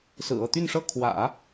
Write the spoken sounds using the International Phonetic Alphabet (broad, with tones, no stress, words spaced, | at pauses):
sɹ̩˨˩ɤ˥˧t̪y˥˧nʂɤ˥˩ kʰwä̰˨˩˦